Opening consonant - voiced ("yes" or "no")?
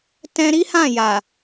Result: no